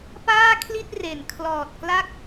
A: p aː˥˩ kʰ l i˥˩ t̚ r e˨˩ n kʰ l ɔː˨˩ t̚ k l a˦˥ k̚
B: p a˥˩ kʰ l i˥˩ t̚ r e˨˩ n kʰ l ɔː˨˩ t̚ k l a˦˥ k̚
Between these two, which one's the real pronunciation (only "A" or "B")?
A